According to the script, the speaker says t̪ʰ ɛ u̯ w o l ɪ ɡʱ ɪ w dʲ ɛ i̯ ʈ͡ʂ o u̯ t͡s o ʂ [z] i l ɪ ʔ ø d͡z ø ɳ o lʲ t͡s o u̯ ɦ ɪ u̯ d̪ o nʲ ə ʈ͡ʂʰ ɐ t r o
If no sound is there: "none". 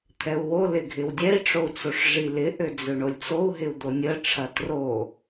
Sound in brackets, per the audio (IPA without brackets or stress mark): ʐ